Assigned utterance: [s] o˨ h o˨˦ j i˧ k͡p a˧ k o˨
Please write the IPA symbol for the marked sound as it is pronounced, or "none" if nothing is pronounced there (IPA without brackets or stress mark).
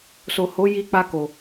s